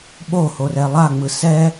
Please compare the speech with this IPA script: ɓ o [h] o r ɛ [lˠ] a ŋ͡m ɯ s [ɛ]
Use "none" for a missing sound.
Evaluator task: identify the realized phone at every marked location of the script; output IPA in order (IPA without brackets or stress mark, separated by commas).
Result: h, lˠ, ɛ